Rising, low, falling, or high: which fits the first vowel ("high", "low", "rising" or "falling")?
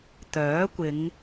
rising